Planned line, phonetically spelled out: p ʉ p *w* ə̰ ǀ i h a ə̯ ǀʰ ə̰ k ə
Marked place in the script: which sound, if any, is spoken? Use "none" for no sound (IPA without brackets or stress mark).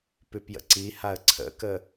j